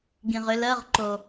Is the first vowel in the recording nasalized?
yes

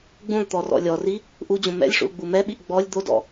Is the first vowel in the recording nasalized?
yes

